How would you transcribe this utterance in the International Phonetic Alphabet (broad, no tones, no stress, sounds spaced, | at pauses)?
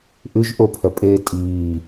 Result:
ʔ ʉ ʒ ʔ o pʰ œ pʼ eː tʼ iː